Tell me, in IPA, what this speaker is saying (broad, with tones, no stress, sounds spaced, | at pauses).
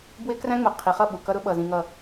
b w ɪ˦ k r æ̃˦ ŋ͡m ʊ˨ qʰ i˨ χ ʌ˦˨ ɓ u˨ k ʌ˦ ɾ ʊ˦ ɓ ʌ˨ z ĩ˨ ŋ ʌ˨